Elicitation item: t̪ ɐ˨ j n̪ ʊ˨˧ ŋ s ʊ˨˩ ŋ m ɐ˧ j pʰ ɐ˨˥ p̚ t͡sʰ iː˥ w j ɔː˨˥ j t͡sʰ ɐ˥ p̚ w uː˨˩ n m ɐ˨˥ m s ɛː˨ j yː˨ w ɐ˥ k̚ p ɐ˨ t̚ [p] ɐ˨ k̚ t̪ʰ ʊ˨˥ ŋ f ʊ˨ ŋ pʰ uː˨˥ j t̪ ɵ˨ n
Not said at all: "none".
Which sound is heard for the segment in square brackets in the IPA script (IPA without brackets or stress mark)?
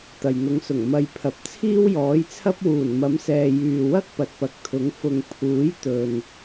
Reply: p